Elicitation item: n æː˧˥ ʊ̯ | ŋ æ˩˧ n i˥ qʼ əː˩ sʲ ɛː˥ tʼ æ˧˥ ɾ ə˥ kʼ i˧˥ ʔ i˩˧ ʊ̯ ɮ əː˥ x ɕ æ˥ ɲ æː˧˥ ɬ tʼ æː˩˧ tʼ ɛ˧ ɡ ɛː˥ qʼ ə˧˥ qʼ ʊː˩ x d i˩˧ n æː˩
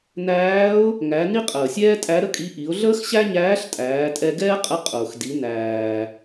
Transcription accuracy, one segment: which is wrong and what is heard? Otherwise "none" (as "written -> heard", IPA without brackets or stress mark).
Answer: none